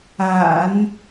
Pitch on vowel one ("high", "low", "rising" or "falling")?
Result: low